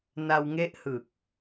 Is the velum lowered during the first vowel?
no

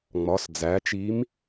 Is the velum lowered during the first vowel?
no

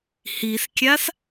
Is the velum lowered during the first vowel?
no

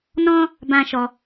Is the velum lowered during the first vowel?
yes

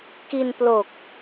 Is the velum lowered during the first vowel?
no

